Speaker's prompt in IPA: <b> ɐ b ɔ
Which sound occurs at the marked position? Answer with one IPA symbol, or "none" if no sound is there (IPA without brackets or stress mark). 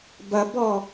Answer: b